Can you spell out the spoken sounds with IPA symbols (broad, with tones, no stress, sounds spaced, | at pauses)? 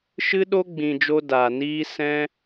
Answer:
ʃ ɨ˦ ɗ o˦ ɡ͡b ĩ˧ d͡ʒ o˦ d aː˧ n iː˦ s ɛ̃˦